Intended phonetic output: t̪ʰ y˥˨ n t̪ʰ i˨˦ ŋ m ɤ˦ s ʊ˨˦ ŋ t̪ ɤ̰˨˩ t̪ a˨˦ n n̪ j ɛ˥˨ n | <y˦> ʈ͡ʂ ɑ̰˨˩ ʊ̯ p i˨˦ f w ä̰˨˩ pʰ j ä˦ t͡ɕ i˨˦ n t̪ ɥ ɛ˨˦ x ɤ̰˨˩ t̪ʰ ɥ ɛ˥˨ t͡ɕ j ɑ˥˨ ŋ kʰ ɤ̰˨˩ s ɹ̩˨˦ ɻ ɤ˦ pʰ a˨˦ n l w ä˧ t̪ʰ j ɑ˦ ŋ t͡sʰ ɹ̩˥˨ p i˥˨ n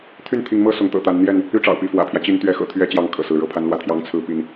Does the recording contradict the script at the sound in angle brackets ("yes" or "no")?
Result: no